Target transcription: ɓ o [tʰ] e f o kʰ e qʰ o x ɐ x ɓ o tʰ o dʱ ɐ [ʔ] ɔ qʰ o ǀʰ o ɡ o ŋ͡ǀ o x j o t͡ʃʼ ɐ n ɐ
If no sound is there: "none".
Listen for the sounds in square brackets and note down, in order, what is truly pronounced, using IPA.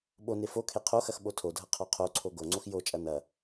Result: n, qʰ

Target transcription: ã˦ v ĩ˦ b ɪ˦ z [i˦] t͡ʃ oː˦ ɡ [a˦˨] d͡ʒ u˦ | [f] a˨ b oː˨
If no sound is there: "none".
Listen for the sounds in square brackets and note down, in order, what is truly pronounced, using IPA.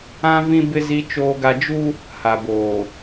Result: i˦, a˦, h

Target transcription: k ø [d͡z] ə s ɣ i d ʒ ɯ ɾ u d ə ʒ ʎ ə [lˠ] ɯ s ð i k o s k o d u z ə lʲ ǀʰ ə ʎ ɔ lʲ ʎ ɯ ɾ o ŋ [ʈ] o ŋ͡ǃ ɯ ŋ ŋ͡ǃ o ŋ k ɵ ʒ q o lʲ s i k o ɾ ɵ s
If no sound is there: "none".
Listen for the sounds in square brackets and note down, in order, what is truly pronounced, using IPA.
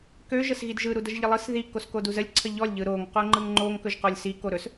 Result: ʒ, lˠ, q

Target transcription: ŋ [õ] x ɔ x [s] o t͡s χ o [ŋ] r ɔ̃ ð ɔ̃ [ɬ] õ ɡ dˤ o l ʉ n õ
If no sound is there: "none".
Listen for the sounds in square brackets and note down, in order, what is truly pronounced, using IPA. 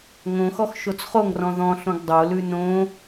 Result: õ, ʃ, ŋ, ɬ

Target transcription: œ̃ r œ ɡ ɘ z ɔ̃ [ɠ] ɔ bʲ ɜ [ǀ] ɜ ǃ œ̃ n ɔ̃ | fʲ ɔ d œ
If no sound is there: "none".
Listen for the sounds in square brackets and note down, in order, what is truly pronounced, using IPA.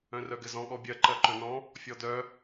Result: ɠ, ǃ

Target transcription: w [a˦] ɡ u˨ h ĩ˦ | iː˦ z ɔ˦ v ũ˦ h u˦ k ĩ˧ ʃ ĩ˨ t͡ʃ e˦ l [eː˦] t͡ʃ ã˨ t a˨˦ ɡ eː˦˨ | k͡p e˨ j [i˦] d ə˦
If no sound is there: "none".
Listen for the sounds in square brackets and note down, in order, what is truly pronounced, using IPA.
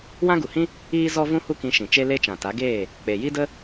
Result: ã˦, e˦, i˦

